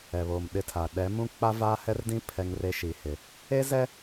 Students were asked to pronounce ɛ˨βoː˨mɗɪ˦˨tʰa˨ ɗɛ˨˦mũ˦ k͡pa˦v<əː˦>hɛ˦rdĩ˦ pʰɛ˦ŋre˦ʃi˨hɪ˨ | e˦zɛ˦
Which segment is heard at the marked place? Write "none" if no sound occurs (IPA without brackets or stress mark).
aː˦